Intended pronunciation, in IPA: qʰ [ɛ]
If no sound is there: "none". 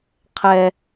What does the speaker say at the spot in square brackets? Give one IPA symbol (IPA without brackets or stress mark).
ɛ